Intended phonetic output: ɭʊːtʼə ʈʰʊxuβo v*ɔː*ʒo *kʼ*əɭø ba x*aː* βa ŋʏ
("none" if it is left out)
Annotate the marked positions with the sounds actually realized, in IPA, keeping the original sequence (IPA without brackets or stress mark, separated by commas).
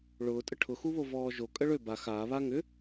ɔː, kʼ, aː